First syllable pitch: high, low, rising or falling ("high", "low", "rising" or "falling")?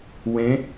rising